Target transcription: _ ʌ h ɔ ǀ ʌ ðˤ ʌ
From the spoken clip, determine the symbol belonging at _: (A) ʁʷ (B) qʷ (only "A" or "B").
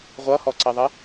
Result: A